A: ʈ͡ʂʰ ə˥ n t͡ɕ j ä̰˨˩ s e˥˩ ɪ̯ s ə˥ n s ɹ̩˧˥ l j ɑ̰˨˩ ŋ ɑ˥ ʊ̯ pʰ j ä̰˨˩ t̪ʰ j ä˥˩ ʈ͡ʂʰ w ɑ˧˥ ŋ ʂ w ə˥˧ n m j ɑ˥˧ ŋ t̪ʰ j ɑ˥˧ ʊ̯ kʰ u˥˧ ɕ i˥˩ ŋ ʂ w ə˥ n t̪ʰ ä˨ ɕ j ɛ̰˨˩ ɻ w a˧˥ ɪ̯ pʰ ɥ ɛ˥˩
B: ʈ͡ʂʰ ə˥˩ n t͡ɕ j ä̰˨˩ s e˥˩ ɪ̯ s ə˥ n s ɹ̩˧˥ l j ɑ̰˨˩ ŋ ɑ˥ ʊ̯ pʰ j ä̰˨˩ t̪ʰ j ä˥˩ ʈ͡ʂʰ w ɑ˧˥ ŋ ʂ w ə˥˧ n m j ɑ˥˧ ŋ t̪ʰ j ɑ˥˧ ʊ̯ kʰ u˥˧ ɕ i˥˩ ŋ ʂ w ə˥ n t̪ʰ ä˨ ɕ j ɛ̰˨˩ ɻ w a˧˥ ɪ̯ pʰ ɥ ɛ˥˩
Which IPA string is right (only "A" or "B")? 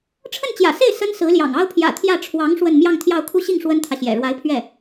B